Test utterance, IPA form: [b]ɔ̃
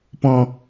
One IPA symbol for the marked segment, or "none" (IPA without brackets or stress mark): p